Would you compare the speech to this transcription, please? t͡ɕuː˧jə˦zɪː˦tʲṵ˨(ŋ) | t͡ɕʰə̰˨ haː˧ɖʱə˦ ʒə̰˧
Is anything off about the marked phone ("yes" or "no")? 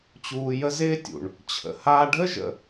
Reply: yes